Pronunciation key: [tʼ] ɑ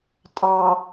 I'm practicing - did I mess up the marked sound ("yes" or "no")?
no